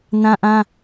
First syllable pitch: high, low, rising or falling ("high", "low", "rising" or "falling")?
high